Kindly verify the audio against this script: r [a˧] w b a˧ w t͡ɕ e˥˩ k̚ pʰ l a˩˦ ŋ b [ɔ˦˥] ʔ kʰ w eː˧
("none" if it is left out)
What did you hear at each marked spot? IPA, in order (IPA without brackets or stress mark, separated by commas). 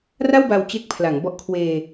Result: a˥˩, ɔ˦˥